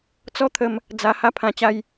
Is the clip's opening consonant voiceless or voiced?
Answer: voiceless